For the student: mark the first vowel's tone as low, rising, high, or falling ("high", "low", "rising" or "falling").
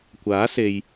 rising